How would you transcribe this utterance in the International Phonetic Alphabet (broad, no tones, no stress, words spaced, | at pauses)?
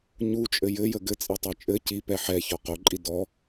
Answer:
ɲut͡ʃʼɘ jɘjə ɡɘt͡sʼitˤɛ t͡ʃʼɘ cipɛ ħɛçɔ qoǃʼi dɔ